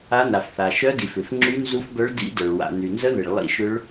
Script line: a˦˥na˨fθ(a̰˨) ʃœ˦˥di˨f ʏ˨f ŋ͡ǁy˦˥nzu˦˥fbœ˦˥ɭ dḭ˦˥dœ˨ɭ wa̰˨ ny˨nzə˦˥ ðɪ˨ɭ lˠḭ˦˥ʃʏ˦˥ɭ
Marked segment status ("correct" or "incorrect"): incorrect